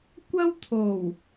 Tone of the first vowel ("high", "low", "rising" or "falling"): high